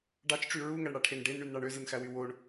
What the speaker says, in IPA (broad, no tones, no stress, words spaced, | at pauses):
ɖɑt͡ʃʈ͡ʂy ɹuŋæɳɽɑʈʰen ɖenɳynɳɑɳ øzɯnxæwy woɳ